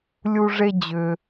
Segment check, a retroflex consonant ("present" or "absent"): present